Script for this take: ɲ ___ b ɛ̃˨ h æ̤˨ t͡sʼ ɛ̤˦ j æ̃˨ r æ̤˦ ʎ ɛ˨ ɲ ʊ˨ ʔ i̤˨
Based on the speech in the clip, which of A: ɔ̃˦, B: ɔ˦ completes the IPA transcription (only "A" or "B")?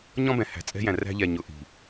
A